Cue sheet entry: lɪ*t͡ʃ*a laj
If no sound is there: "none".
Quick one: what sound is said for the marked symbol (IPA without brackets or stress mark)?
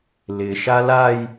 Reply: ʃ